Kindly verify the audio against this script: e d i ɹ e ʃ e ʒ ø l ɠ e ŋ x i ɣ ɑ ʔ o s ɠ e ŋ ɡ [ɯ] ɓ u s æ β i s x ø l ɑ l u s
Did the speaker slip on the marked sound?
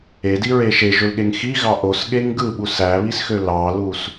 no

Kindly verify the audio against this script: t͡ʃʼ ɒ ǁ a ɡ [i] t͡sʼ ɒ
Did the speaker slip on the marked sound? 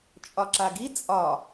no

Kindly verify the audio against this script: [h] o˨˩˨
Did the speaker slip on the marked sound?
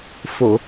yes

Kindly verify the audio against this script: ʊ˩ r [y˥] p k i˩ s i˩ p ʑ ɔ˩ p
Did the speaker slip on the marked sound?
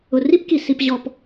yes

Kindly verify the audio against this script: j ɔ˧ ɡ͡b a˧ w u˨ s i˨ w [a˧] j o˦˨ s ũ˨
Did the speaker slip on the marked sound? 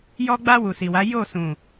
yes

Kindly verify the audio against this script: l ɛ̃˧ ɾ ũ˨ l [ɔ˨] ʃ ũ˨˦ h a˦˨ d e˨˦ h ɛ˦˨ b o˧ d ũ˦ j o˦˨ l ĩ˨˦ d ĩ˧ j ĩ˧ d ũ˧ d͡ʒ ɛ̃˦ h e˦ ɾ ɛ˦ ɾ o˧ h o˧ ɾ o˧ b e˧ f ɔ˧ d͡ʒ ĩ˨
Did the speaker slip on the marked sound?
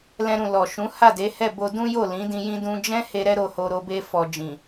no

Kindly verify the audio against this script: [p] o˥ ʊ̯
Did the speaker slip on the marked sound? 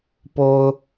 no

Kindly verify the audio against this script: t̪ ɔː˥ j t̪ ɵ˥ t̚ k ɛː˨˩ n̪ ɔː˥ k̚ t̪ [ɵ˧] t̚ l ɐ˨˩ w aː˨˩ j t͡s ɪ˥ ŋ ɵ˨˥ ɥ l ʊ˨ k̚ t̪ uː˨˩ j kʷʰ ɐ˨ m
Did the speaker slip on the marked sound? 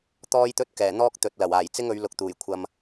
yes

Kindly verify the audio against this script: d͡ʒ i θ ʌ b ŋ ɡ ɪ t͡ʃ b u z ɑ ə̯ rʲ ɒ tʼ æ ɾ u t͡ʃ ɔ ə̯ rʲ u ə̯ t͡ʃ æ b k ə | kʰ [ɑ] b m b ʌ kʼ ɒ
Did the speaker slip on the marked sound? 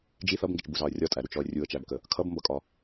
yes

